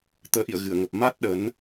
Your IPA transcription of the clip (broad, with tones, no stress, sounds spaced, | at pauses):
t̪ əː˨˦ ʔ ḭ˧˨ ə̯ ɣ ɨ˧˩ ə̯ ŋ ə˨˩ p̚ m a˦˥ t̚ ɗ ə˨˦ n